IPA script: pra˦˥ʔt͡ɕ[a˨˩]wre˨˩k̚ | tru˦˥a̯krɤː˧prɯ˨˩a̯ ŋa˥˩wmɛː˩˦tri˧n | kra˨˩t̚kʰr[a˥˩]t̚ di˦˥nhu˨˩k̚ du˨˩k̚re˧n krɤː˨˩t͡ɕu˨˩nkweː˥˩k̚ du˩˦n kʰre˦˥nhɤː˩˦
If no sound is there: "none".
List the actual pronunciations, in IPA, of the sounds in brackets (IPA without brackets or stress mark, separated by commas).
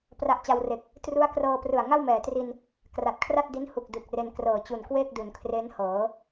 a˧, a˥˩